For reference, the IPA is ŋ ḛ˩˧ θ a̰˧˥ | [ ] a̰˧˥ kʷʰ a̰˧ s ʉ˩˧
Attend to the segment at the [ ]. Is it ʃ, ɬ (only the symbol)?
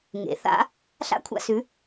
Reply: ɬ